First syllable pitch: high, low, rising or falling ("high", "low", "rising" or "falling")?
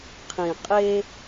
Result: low